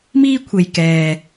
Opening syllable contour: high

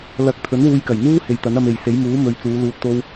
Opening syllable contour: rising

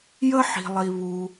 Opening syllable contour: high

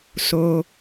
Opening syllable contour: low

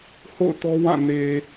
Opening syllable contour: falling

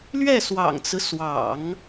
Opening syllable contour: falling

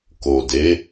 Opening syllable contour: low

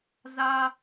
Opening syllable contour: high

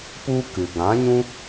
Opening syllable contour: high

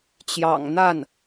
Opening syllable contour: low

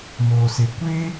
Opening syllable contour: low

